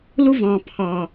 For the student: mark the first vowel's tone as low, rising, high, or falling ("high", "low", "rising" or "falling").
high